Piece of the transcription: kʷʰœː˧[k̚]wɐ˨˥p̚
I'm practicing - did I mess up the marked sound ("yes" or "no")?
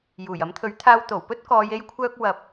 no